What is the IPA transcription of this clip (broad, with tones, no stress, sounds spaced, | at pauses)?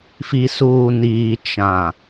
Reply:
f i˨ s uː˨ n iː˨ t͡ʃ ã˨